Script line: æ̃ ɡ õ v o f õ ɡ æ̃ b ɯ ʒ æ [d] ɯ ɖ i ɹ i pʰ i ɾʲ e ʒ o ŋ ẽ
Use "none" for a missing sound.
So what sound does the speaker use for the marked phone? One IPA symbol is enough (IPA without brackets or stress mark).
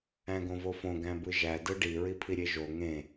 d